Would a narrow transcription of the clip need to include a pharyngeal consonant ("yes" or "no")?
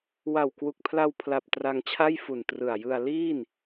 no